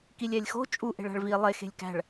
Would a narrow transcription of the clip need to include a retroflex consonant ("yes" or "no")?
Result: yes